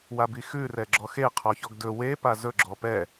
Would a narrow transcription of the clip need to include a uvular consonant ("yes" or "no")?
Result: yes